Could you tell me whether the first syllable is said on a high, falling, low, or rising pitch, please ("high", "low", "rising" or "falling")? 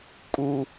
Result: high